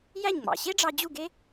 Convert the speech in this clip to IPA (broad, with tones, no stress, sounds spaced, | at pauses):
j æ˥˩ ɲ ŋ͡m ɑ̰˩ ɕ e˥ ɖ͡ʐ ɑ˧ d͡ʑ u˥˩ ɡ e˥